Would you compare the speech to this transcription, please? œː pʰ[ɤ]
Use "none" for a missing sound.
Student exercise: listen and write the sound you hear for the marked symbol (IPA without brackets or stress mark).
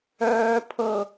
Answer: ɤ